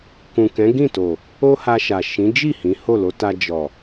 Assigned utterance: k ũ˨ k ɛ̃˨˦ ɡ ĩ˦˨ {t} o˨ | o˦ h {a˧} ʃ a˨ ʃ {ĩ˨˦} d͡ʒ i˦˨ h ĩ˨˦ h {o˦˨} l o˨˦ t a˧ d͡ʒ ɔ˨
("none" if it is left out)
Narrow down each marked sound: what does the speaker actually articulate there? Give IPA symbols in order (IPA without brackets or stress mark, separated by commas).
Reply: t, a˧, ĩ˨˦, o˦˨